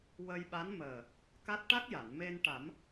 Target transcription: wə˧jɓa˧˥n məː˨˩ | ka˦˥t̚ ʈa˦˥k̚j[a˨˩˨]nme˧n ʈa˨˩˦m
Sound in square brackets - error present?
no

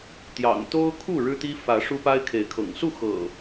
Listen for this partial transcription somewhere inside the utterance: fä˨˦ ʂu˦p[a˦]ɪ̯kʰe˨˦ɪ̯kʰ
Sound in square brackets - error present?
no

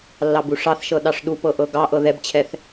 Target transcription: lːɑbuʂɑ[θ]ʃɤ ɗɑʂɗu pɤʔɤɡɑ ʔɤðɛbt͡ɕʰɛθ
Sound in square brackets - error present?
no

